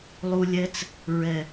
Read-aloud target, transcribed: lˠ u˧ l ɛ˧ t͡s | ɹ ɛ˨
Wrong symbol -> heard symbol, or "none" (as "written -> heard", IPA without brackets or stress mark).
l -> lʲ